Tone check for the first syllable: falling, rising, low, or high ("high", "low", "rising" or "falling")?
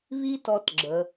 high